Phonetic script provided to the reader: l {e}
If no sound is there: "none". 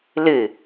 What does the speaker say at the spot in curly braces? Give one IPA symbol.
ɨ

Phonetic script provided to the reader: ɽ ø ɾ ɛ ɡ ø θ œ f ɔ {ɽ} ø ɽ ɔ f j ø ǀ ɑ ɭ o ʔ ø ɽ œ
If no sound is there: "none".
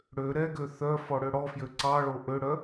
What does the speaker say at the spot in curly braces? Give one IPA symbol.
ɽ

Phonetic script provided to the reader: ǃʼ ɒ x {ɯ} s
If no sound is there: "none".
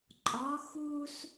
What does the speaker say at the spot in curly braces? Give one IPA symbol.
u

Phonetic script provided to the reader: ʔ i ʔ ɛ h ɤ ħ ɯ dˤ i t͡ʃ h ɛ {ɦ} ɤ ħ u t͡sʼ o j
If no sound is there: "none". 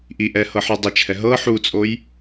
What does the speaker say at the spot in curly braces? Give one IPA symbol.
ɦ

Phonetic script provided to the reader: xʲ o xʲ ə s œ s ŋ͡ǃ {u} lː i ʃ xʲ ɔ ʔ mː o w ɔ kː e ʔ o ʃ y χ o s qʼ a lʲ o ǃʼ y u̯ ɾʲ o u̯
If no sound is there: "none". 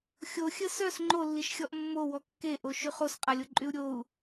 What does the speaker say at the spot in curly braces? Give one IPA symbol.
o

